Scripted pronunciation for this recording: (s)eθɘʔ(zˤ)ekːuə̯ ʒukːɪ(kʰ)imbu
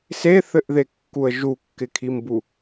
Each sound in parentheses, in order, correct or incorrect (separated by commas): correct, incorrect, correct